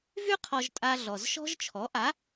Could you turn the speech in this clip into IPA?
vy˥ qʰɔ˧ʒtʼa˧ ɮɔ˩zʃɔ̤˥ʒt͡ʃʰɔ˩˥ ʔa˩˥

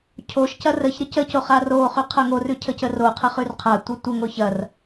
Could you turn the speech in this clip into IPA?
cʰoʃcɐ rəçɾə cəcoχ aroχʉ qʰɐŋorʉ cʰəcəroqʰaχ ʉrqʰatʷɐ tʷəŋoç ɐr

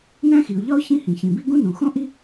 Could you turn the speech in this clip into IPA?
næ̃˥xi˩ʊ̯ ʎɒ˥ʊ̯ çĩ˥ hĩ˩çĩ˩bi˥ ɡũ˥nũ˩xõ˥ʔi˥

